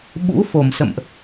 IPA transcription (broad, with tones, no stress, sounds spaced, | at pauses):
ɓ ṵ˧˥ f o˧˩ m s ə̰˧˨ m ʔ